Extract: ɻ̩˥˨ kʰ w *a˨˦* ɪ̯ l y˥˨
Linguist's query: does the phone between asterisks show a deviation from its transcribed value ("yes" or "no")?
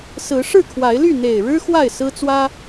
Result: no